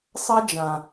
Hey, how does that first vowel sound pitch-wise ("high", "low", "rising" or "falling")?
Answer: high